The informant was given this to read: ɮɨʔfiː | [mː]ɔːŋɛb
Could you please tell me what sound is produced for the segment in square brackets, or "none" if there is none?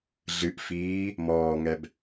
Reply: m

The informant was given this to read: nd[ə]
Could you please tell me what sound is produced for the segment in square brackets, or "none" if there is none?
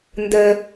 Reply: ə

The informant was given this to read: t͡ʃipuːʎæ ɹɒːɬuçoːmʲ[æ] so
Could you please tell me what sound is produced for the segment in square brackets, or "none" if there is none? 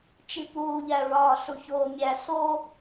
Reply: æ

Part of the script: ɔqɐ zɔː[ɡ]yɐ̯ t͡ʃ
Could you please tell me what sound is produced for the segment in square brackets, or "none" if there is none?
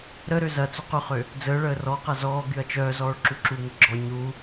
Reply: ɡ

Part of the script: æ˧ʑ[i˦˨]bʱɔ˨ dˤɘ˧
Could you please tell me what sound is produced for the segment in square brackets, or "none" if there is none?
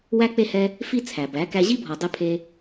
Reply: i˦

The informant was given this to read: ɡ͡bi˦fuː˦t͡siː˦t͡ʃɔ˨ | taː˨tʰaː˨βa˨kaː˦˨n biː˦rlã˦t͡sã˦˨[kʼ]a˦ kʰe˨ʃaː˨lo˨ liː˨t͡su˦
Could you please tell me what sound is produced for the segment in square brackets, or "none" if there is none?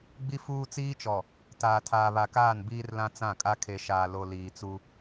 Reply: kʼ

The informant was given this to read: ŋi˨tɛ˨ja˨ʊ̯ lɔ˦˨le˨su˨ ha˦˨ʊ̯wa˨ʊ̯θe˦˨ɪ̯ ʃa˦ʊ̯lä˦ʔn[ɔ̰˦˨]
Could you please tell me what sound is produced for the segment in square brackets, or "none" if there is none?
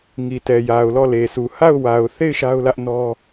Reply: ɔ˦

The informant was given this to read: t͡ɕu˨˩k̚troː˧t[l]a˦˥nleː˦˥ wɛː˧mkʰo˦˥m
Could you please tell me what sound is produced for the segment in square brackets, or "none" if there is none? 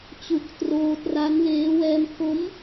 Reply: r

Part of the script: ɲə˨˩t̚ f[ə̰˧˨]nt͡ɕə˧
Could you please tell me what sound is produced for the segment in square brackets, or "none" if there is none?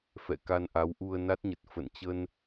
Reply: ə̰˧˨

